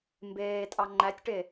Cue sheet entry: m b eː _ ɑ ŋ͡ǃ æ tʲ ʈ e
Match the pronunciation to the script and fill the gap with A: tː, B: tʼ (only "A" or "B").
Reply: B